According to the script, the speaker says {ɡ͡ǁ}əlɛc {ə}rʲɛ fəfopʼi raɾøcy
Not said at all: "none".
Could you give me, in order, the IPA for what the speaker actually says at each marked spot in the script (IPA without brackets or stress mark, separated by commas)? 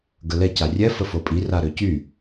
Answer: ɡ, a